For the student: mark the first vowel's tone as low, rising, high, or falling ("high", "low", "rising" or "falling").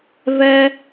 high